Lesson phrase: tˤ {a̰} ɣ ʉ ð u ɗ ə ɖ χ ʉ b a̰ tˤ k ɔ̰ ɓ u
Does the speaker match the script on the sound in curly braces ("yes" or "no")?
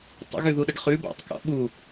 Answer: no